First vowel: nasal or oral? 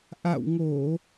oral